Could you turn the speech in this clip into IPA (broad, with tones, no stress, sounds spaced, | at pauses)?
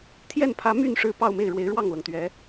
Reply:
t̪ʰ j ɛ˥˩ n pʰ ä˧˥ m y˥˩ n ʂ ɻ̩˧˥ p ɑ˥˧ ʊ̯ m e˥˩ ɪ̯ ɻ w e˧˥ ɪ̯ ɻ w ɑ˥˩ ŋ l ɤ˩ ŋ t̪ ɥ ɛ˧˥